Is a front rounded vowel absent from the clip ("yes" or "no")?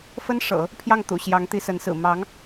yes